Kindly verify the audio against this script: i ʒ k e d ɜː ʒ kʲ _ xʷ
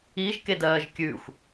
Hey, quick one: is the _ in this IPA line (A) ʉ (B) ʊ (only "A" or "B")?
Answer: A